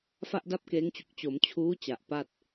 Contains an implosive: no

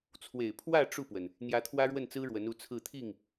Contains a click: no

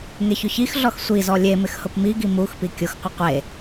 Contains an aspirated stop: no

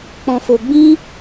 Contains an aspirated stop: no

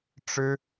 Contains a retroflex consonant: yes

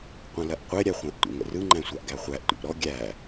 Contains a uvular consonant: yes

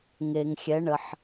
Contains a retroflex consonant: yes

